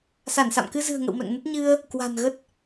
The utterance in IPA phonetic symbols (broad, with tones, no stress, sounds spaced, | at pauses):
s a˧˩ n s a̰˧˨ m k ɨ˧ z ɨ̤˨˩ ə̯ ŋ ə̰˧˨ w m ɛ̰˧˨ ŋ n ə˦˥ t̚ ɲ ɨ˧ ə̯ | k w a̤˨˩ n ɣ ə˦˥ t̚